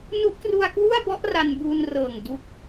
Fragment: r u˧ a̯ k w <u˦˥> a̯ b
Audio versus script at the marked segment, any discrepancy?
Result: yes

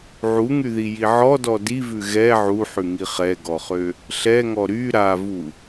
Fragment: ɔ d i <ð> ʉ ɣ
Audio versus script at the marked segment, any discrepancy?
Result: yes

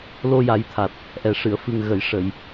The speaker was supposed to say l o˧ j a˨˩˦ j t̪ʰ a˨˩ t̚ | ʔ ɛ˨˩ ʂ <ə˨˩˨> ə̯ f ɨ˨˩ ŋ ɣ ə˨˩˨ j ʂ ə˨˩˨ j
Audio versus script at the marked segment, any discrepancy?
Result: yes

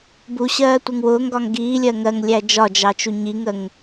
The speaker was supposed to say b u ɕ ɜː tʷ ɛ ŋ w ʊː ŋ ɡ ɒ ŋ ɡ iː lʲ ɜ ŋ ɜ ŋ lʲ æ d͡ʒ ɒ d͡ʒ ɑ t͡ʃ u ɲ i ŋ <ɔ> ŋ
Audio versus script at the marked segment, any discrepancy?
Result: yes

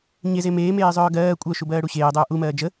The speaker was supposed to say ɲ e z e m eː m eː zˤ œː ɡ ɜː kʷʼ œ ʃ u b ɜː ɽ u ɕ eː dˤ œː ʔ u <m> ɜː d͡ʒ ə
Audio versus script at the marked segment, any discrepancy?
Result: no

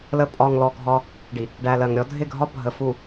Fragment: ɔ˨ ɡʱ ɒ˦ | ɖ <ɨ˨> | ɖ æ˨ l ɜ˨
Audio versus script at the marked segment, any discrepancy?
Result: yes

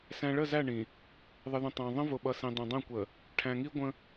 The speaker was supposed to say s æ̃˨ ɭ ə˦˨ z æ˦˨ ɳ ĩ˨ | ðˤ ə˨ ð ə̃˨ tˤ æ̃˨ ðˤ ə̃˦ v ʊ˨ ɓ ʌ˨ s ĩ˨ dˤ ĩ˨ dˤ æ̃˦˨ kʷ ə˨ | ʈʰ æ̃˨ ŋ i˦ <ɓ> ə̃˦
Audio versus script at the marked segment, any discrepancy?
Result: yes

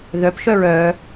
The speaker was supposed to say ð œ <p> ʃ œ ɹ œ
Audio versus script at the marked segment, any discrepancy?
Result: no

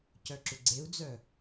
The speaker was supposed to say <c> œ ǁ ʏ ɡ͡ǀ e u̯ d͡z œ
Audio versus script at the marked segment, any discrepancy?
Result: no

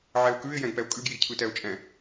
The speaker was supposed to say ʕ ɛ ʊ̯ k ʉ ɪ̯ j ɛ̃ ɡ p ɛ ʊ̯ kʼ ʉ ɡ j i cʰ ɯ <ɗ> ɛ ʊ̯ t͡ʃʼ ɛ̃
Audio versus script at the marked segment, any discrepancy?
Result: yes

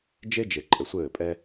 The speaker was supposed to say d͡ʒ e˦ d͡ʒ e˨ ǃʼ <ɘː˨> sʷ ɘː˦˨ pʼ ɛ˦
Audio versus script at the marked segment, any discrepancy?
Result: yes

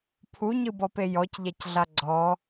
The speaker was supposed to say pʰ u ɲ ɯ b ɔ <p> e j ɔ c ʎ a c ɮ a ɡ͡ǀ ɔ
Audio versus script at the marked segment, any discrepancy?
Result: no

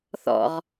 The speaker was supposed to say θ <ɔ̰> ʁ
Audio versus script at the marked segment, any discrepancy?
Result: no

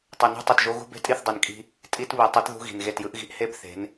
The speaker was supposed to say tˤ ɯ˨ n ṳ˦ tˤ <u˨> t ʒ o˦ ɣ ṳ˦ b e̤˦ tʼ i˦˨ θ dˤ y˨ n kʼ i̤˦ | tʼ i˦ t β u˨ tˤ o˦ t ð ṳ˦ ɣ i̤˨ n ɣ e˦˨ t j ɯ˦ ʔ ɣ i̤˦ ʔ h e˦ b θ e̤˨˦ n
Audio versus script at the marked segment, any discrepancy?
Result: no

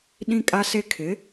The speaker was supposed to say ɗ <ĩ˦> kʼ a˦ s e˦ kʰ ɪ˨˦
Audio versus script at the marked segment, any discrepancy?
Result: no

